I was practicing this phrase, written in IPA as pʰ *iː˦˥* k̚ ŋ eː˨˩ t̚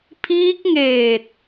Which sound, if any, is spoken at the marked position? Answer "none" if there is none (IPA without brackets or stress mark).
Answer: iː˦˥